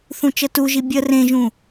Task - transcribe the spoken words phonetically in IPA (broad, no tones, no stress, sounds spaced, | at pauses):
θ ũ t͡ʃ ə t u ʒ i bʲ ə r ẽ ʒ ũ